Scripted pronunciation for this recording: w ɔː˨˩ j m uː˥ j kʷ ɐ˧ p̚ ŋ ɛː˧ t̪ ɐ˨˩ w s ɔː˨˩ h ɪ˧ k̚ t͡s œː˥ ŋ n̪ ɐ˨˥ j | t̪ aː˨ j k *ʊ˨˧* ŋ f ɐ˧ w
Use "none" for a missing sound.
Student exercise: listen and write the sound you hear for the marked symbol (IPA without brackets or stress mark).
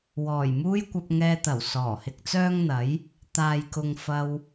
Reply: ʊ˨